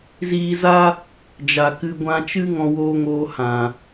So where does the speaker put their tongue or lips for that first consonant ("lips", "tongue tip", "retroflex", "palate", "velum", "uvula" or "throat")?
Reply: tongue tip